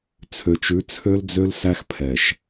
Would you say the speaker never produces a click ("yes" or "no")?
yes